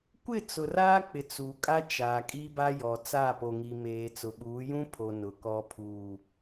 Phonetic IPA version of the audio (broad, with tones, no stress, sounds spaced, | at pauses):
kʷ ɪ˦˨ t͡s ʊ˨ r aː˦ k͡p ɪ˨ t͡s u˨ kʼ a˦ t͡ʃ aː˨ kʼ i˦ b a˦ j ɔ˨ t͡s a˦˨ p o˨ ŋ i˨ m eː˨ t͡s ʊ˨ ɓ uː˨˦ j ũ˦ pʰ o˨ n ʊ˨ k ɔ˦ pʰ uː˨